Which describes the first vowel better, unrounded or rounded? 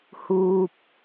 rounded